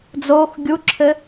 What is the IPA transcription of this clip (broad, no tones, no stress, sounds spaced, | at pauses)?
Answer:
d͡z oː x ɡʲ u ǁʰ ɘ